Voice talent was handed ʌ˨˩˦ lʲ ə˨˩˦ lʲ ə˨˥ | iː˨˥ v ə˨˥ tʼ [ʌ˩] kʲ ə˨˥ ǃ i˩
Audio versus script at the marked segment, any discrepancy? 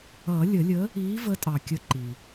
yes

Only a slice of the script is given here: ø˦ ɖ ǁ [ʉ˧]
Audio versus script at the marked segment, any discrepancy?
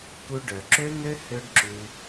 no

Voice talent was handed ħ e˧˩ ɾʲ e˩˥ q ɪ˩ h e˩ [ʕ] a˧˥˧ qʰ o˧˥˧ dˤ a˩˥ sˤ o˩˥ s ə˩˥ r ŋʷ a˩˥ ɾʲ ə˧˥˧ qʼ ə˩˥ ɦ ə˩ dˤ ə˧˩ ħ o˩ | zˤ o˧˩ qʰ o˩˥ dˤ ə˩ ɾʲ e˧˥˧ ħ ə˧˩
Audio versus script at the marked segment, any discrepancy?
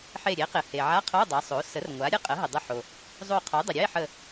no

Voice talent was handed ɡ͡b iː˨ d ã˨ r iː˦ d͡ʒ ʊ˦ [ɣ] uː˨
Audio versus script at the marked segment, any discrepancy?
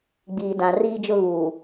no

